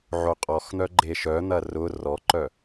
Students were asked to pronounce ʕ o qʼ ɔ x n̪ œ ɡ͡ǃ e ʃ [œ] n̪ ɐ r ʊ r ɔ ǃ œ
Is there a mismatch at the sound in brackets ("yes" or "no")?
no